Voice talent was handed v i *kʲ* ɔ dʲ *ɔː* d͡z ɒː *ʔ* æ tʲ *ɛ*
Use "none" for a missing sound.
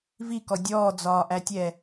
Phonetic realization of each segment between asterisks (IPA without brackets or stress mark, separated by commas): k, ɔː, ʔ, ɛ